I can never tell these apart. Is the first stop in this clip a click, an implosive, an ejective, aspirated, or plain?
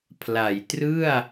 aspirated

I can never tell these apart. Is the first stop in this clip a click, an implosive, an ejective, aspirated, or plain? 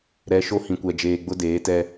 plain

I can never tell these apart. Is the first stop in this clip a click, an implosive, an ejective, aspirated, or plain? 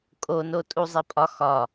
ejective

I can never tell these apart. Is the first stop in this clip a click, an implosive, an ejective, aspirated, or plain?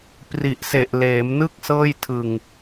plain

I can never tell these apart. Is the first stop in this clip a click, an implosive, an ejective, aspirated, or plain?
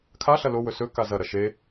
aspirated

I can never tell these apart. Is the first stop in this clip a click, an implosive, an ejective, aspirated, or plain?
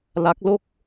plain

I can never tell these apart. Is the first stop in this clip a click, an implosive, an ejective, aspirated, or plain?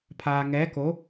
aspirated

